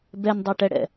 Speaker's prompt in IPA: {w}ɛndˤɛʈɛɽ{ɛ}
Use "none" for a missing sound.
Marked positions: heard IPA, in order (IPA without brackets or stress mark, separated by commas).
b, ɛ̰